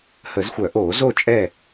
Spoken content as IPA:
hə˨˩˦zxʷœ˨˩˦ʔoː˨˩˦ zo˥˨t͡ʃʼɛ˥˨

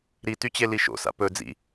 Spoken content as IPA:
ɾityt͡ɕe liʃo̰sa̰ pɵ d͡zḭ

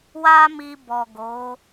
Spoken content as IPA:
wa˦mi˧ bɔ˨ ɡo˨˦

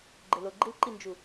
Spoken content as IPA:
ɡ͡ǃɪloɡ͡ǃil ǃind͡ʒu

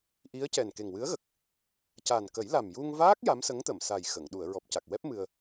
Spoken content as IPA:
ʔi˧˥ə̯cɛ˨˩n ke˨˩ŋwɨ˧˥ə̯ɣə˨˩k̚ | ca˨˩nkə˨˩˦j la˨˩mju˧ŋvaː˦˥k̚ ja˧˥msə˧˥ŋt̪ə˨˩˨msa˨˩j xə˨˩˨ŋ ɗu˨˩˨ə̯ɹɔ˨˩p̚ca˨˩k̚wɛ˦˥p̚ mɨ˧ə̯

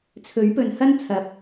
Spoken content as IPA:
t͡sʰɵ˨˥ɥpɵ˨nhɐ˥nt͡sʰɐ˨˥p̚

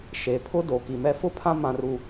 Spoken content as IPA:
ʃe˨pʰʊ˦ do˨ki˨mɛ˦ fʊ˦pʰã˦ mã˦ru˦

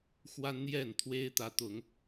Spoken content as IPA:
xwa˦nn̪jɛ˥˨nt̪ʰwe˦ɪ̯ t̪ä˨˦t̪ʊ˨˦ŋ

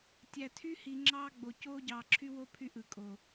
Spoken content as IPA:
tʲæ˨tʰy˦hi˨ ŋ͡ǁɑː˦ɡ͡bo˨ coː˦ɟɑː˨ǁʰy˦wo˦ pʰy˦ʔɯ˨kʼo˨

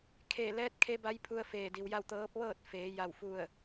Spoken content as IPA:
kʰeː˧˩lɛː˧˥t̚ kʰe˧˥ba˧˥j pʰu˧ə̯feː˧˩di˩wja˥˨w t̪ɤː˧˥p̚ ʋɤː˥˨t̚feː˩˧ ja˥˨wfu˥˨ə̯

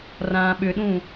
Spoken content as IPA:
rãːɓʏɗũ

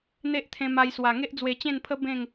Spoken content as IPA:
n̪e˦ʔt̪ʰẽ˧ma˧jswa˨˩ ŋe˦ʔd͡zwe˧t͡ɕẽ˥˧npʰə˦ bẽ˥˧ŋ

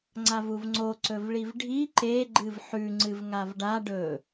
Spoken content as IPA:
ŋ͡ǀavuvŋ͡ǀo ǀɵvɭivɖʱi ǃe ɡ͡ǃɨvħʉ ŋ͡ǀɨvŋavɖa ɖɵ

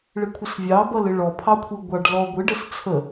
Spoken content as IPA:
ɭɪkʷʰəsvʲɑ bʌlɪɭɔ pʰɑkʷʰiɡʷɑɖ lɔɡʷɪ ɖəst͡sʰə

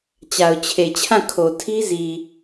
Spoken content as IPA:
t͡ɕa˨ʊ̯t͡ɕʰe˨t͡ɕʰã˦˨ kʰo˨tʰi˦zi˨

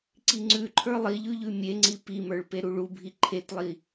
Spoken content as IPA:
ǀiŋ͡ǀʉǃʰə˞ lˠiʎʉ ʎʉmʲeŋ͡ǀi pimə˞ɭ peɾuɭubʱi ǃʰetlˠi

